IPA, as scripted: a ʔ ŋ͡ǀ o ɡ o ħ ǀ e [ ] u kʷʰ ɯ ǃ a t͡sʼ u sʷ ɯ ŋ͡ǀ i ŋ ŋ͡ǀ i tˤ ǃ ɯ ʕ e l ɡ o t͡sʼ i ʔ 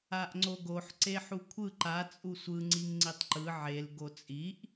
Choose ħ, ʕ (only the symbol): ħ